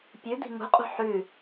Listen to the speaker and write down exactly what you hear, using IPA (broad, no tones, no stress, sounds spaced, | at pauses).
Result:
pʲ ʉ d̪ i̤ ŋ ṳ qʼ ṳ ħ ʉ